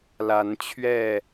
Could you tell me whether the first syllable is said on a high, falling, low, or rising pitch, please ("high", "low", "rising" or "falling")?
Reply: rising